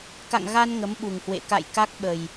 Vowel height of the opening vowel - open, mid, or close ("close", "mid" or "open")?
open